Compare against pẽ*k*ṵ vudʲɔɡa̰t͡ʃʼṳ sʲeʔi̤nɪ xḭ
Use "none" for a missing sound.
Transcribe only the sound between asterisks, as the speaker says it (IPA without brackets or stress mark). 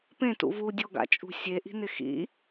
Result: t